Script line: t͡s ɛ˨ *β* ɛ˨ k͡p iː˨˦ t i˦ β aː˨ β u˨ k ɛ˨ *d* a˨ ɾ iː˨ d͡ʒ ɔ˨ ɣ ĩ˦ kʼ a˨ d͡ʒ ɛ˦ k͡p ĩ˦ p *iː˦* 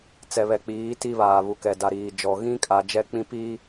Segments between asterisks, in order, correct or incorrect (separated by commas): correct, correct, correct